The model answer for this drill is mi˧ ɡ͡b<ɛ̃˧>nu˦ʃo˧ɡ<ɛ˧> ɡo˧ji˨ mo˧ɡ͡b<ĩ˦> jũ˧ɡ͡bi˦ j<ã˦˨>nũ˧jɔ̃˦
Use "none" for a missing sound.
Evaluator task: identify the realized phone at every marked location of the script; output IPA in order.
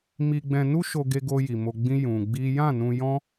ɛ̃˧, e˧, ĩ˦, ã˦˨

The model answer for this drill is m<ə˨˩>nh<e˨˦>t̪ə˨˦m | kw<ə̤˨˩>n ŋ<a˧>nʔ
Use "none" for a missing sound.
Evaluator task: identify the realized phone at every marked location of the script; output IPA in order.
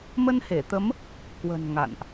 ə˧, e˧˩, ə̤˨˩, a̰˧˨

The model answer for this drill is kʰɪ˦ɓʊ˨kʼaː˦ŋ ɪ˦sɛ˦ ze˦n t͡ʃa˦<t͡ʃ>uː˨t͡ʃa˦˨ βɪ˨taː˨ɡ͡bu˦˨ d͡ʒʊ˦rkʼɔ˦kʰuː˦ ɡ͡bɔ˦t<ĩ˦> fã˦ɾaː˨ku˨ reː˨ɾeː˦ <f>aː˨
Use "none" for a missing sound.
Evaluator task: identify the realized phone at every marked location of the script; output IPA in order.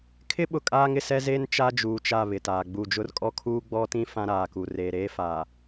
d͡ʒ, ĩ˦, f

